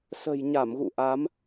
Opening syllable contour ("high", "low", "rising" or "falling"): low